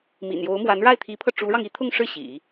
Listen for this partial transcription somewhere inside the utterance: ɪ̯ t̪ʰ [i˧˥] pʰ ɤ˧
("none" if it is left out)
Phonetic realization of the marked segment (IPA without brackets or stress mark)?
i˧˥